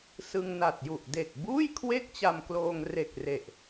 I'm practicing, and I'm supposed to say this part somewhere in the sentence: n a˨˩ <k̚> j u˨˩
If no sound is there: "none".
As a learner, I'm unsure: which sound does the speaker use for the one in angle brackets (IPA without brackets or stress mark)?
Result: t̚